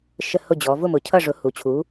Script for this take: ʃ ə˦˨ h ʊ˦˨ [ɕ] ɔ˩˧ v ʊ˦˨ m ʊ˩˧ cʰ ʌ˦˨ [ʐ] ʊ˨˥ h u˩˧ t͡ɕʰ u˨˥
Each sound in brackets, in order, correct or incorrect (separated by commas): incorrect, correct